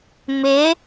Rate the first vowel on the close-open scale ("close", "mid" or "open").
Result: close